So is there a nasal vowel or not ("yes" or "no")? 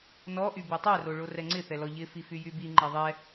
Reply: no